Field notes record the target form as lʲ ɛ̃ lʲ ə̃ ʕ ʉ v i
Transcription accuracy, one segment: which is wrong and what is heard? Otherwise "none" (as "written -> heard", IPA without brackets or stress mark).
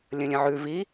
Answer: ɛ̃ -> ə̃